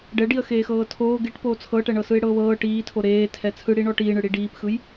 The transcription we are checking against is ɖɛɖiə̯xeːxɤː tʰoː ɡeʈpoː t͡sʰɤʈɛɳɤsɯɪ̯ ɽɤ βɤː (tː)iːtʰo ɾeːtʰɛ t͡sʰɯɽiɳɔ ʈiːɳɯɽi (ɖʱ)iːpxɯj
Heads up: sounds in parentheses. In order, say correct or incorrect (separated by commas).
incorrect, incorrect